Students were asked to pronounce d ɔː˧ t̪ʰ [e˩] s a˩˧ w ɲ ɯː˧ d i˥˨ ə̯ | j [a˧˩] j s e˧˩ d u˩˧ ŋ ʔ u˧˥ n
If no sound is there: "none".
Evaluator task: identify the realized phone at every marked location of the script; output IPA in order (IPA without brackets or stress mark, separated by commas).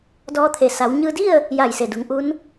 e˩, a˧˩